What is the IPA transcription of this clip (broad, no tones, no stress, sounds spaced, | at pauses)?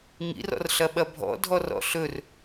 ŋ ḭ r ɔ̰ r ɬ ɐ ɓ ɐ bʱ ɔ̰ dʱ ɔ r ɔ̰ ɬ ɵ r